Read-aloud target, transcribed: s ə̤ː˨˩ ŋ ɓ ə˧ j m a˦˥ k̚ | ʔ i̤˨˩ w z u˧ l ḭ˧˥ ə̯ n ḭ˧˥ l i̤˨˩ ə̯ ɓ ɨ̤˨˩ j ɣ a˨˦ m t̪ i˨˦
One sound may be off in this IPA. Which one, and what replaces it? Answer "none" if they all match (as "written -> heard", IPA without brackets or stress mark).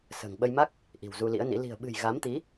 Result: none